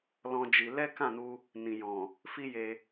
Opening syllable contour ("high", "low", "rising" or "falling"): high